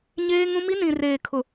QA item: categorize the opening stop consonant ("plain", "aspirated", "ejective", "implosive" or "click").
aspirated